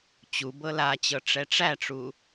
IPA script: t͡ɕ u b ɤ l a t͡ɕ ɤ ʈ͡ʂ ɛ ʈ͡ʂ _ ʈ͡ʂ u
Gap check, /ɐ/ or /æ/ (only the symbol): æ